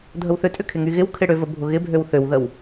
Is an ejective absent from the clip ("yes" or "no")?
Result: no